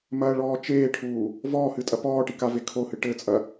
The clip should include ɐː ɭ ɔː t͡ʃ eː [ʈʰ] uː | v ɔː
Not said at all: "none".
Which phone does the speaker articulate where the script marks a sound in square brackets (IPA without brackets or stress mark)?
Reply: ʈʰ